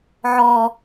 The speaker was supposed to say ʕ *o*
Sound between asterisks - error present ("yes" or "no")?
yes